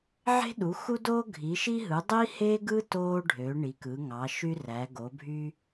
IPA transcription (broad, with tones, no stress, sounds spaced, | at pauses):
ʕ e̤˥ ɗ u˩˥ x u˥ d oː˥ ɡʱ i˩˥ ʃ i˥ ɦ ɯ˩˥ dˤ i˥ h e˥ ɡ ɯ˥ t oː˥ ɖʱ ø˩˥ ɳ i˩˥ k ɯ˩˥ ŋ ɑ˩˥ ʃ y˥ r æ˩˥ ɡ o˩˥ bʱ y˥